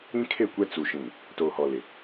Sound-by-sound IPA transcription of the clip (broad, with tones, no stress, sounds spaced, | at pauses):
ĩ˦ kʰ e˦˨ kʷ ɛ˦ t͡s u˨ ʃ ĩ˨ | t oː˨ h ɔ˨ l ɪ˨